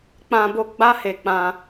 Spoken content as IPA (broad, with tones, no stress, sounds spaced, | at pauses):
k͡p ã˧ b o˧ ɡ͡b a˦ h e˧ k͡p ã˧